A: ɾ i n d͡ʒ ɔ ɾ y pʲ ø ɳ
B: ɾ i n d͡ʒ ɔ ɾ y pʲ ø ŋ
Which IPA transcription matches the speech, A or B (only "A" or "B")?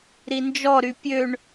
A